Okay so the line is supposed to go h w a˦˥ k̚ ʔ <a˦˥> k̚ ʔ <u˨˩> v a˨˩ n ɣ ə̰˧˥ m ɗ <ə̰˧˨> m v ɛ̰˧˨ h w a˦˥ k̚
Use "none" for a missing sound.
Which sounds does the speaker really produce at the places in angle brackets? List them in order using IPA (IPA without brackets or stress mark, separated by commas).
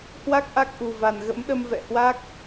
a˦˥, u˨˩, ə˧